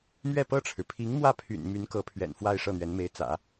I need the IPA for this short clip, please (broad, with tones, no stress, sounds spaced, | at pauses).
m ɥ ɛ˥˧ p ɤ˥˩ ʈ͡ʂʰ ɻ̩˩ pʰ i˧˥ ŋ m w ä˥˩ pʰ y̰˨˩ n m y˧˥ n k ɤ˧˥ pʰ ɥ ɛ̰˨˩ n f w a˥˧ ɪ̯ ʂ ɤ˥˩ n̪ ɥ ɛ˧˥ n m e˧˥ ɪ̯ t͡s ä̰˨˩˦